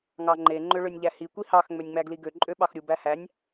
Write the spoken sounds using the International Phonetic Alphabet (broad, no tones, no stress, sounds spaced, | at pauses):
ŋ ɑ ŋ͡ǃ e ŋ͡ǃ ø ɭ ø nʲ ʎ æ h i kʷ i h ɑ x ŋ͡m ø nʲ ŋ͡m æ ɡ l i ɡ ø ǃʼ ø ɓ ɑ x ɾʲ u b æ h æ nʲ